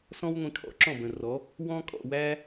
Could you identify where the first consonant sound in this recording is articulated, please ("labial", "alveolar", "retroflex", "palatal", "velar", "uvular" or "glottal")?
alveolar